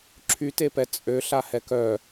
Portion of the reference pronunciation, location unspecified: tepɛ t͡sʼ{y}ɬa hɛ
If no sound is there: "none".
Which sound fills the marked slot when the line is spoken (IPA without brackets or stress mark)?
ø